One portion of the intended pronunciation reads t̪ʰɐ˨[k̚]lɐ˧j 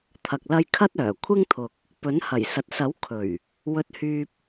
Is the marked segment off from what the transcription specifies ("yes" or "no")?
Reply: no